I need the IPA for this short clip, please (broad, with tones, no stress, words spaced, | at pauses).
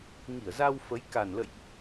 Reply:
ŋi˧˩ə̯za˧wfə˨˦j ka˨˩nlə̰˧˨jʔ